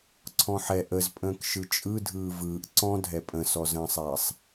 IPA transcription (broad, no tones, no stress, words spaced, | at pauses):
ǀʰɔ̃ħɛ ʔəzpʼə̃ːkʃɯ t͡ʃʼɯdʱɯː vɯːʔ ǀɔ̃dʱɛ pʼə̃sɔzə̃ːsˤɛːsˤ